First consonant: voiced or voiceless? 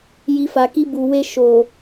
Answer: voiced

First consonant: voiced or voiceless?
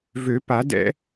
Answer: voiced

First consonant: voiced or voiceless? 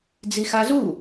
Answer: voiced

